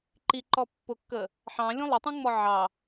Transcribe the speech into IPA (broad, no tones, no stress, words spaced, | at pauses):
ǃiǃɔ pːʊkːə | ħɑ̃lʲũ lˠətˤũŋ͡mɔ ʕɑ